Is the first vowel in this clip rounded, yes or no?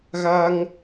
no